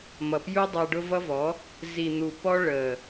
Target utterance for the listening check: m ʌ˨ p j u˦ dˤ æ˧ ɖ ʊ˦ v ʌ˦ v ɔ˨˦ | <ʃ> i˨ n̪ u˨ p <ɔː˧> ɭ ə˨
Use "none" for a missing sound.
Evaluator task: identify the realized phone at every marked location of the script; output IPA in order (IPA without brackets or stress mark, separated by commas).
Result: z, ɔ˧